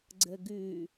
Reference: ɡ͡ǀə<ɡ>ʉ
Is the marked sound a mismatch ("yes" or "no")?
no